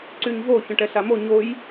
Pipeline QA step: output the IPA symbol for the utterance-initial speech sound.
ǀ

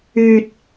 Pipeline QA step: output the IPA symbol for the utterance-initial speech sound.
yː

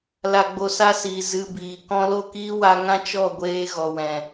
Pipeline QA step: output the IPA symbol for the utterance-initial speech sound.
l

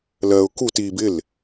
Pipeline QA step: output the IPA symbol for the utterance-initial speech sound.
l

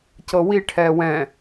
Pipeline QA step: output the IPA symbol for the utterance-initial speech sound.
c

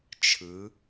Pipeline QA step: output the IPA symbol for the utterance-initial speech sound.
t͡ʃʰ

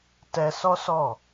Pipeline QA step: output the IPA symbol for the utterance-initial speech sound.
t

